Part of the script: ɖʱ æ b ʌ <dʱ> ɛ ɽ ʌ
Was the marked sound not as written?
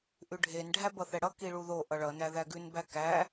yes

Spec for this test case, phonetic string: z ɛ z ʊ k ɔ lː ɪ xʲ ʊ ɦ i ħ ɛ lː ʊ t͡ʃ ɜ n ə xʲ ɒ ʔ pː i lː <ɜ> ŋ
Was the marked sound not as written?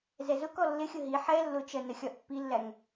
yes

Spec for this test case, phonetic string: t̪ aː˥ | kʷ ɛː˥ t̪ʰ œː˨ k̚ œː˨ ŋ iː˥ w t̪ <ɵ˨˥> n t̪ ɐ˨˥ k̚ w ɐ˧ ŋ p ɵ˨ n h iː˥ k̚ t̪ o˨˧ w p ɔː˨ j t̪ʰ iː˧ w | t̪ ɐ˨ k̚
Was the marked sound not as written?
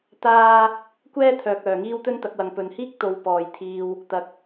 yes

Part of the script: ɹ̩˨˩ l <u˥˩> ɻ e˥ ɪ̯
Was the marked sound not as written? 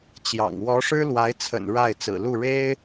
no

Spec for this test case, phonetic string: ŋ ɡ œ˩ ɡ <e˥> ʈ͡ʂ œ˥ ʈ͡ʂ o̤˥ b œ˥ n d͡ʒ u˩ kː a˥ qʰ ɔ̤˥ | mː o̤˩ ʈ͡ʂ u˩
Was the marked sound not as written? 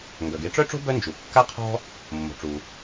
no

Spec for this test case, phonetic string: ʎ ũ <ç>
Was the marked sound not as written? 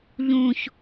no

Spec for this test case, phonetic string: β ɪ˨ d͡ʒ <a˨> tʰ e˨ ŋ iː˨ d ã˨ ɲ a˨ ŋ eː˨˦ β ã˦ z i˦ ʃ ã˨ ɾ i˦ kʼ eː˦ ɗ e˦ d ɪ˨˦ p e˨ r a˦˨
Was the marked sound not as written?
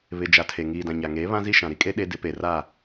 no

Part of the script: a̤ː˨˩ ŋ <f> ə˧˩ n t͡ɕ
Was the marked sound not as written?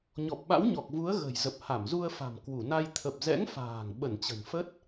yes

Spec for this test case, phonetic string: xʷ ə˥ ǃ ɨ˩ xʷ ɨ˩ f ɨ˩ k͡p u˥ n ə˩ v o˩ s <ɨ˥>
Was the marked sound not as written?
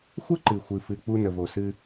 no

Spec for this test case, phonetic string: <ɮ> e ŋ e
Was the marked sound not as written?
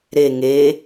yes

